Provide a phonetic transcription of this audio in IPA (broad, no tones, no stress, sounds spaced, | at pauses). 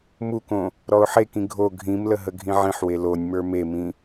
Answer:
m u k õ | ɾ ɔ ʊ̯ ħ e k ĩ ɡʱ o ɡʱ ĩ m l ə ɦ ə ɡʱ ĩ ʕ ĩ ħ w e l o nʲ m ə˞ m e m ĩ